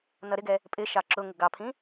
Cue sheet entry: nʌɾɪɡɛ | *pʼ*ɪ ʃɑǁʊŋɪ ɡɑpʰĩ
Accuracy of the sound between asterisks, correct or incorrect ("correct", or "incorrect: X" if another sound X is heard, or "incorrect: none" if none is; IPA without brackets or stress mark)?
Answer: correct